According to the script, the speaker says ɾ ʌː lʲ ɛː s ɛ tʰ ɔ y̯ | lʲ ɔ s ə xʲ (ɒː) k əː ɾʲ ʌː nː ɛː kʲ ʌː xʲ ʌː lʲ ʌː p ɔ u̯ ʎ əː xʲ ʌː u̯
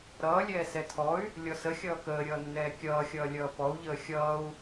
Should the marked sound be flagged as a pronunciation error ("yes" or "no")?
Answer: yes